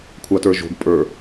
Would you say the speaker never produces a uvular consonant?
yes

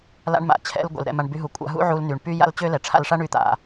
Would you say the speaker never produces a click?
yes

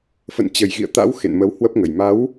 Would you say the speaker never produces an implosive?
yes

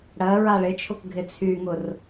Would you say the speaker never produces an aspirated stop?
no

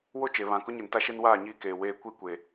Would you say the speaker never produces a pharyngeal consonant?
yes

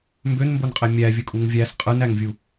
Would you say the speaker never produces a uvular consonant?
no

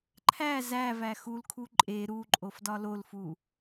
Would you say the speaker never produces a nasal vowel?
yes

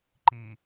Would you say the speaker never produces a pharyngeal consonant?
yes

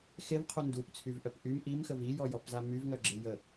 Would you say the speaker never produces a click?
no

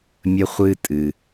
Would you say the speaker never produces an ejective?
no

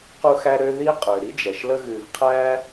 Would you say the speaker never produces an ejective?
no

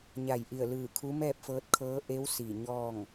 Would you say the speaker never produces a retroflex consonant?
yes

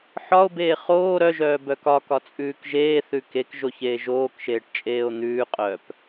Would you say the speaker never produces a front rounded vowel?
no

